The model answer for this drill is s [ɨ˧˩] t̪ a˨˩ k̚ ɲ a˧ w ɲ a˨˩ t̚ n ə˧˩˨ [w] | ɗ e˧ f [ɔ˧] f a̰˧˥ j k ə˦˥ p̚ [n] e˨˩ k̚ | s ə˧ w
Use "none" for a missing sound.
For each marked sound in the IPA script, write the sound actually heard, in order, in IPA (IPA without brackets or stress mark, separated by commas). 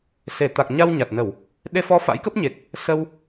e˧˩, w, ɔ˧, ɲ